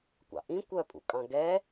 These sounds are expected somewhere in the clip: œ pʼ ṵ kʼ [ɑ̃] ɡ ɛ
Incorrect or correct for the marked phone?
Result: correct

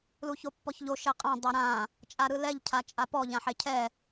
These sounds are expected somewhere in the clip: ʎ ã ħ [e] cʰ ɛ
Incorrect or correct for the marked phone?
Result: correct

